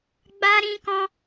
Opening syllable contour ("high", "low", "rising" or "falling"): high